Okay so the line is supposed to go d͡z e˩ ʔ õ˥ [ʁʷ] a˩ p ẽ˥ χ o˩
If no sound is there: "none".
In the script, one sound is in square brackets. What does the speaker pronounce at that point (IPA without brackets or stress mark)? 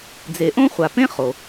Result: χʷ